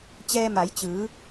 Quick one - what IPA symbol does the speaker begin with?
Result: t͡ɕ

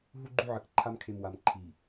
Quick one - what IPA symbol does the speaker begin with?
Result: ɦ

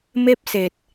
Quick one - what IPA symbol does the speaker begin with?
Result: m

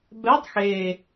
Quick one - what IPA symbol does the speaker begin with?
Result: b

